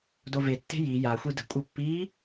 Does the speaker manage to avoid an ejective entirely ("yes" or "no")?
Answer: no